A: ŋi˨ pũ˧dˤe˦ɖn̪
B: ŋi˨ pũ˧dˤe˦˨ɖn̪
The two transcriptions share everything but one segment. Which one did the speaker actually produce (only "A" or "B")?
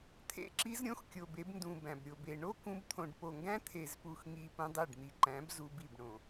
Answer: B